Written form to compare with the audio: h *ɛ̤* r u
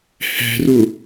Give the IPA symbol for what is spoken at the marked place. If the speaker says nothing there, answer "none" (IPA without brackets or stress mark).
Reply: ɛ̤